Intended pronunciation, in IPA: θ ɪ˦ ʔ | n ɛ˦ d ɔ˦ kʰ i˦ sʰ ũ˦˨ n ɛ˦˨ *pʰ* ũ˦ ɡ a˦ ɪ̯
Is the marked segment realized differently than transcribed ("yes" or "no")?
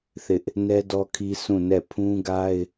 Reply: no